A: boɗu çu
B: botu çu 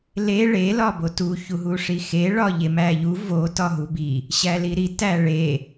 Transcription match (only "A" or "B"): B